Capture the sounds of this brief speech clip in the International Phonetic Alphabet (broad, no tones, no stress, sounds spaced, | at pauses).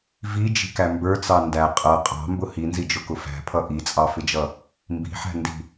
v i d͡ʒ i̤ k æ m b ə˞ t͡s ɑ n d æ qʼ ʌ qʼ ɑ̤ m b ʊ h i n z i d͡ʒ ʊ k ʊ f æ̤ pʰ ʌ ʔ i t͡sʼ ɑ f ɪ d͡ʒ ʌ | m b i̤ ħ æ̤ n d i̤